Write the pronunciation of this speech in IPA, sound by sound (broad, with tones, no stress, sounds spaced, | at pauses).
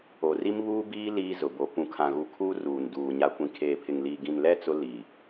o˨ r i˦ m β uː˦ b iː˦ l iː˦ z ʊ˨ b o˨ p ũ˨ kʰ ã˨ ɣ u˨ kʰ uː˦ r uː˨ n d uː˨ ɲ a˨ kʷ ĩ˨ kʰ eː˨ pʰ ɪ˨ ŋ l iː˨ ɡ ĩ˨ n l ɛ˦ t͡s ʊ˦ l iː˨